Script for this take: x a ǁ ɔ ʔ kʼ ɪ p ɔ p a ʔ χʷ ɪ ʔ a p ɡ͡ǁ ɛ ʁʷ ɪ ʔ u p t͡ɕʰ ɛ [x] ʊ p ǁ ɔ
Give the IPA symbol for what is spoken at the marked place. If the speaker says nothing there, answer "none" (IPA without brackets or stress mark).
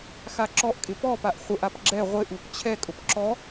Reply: kʼ